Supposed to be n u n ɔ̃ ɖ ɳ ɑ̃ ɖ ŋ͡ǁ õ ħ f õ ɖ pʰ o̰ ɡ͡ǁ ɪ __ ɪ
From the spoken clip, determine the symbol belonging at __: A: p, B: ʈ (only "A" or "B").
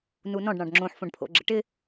B